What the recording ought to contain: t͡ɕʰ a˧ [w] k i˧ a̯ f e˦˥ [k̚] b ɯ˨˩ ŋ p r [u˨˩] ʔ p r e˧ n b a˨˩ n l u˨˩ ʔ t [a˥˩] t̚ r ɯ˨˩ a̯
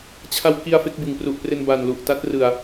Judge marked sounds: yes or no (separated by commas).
yes, yes, yes, no